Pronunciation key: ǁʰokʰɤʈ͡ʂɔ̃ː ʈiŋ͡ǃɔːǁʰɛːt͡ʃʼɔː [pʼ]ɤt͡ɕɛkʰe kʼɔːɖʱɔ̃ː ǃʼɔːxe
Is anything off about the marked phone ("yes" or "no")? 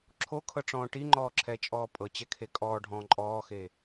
no